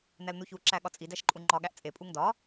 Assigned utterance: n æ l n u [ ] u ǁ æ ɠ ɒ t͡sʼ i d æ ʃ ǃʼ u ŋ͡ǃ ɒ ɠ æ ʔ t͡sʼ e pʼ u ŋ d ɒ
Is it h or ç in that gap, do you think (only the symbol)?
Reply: ç